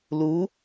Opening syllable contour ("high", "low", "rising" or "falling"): rising